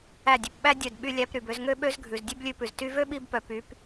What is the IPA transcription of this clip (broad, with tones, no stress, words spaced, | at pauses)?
æ˦˨dʲø˧p ɓæ˦ dʲœ˦˨d ɓy˧lʲæ˧pɾy˨b ø˧zŋø˦ɓø˦zɡʱʉ˨z dʲø˦blʲʉ˧pʉ˨z ty˧vø˦ɓi˧bpœ˨ py˨˦p